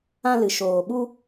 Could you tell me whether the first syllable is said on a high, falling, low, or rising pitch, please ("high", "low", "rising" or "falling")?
high